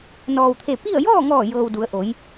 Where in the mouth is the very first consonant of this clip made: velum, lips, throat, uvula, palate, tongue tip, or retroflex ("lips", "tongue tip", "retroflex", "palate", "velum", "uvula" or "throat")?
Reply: tongue tip